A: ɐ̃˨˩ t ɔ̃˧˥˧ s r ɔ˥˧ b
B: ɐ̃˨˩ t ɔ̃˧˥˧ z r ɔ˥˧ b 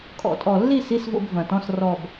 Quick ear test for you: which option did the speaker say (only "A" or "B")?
A